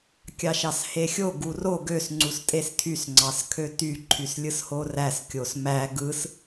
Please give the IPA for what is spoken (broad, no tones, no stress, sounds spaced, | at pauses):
kʲ ɑ ʃ ɑ s h e xʲ o ɡ u r o ɡ ø s ŋ͡ǀ u s tʼ e s tʰ y s ŋ͡ǀ ɑ s kʰ ø t y ǃʰ y s lʲ ɯ s h o r æ s kʲ o s m æ ɡ ɯ s